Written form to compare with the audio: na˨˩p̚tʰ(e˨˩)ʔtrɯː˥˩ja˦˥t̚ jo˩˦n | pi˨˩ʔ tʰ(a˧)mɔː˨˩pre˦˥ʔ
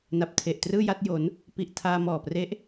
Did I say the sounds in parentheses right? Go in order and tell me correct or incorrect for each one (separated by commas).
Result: correct, incorrect